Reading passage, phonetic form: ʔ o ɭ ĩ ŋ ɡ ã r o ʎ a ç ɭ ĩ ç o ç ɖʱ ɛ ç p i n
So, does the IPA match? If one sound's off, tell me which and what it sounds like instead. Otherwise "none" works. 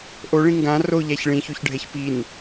none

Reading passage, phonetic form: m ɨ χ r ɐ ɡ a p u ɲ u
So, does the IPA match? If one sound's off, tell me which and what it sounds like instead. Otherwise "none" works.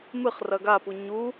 none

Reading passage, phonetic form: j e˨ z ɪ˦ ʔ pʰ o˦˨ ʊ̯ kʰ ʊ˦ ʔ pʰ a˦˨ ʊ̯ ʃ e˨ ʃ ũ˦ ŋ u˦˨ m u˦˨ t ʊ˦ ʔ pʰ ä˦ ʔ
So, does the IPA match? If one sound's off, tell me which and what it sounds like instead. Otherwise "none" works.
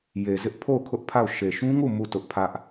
none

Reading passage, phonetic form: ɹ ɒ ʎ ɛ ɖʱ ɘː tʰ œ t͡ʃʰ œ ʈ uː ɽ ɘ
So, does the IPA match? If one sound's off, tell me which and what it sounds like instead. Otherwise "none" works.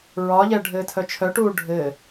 ɽ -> ɖʱ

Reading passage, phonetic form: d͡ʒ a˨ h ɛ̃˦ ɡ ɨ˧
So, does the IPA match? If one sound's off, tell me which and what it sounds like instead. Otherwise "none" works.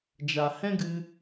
none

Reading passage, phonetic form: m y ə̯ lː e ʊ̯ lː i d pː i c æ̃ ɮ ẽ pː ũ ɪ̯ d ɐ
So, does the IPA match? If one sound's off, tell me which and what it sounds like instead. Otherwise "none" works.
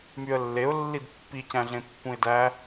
ɐ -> æ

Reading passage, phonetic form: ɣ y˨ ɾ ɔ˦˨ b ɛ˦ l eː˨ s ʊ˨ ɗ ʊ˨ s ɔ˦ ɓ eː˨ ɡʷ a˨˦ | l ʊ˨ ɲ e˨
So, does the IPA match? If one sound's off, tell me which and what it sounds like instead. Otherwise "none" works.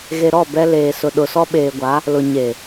y˨ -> e˨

